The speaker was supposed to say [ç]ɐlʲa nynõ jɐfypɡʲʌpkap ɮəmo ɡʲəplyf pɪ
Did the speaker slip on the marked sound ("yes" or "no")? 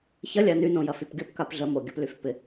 no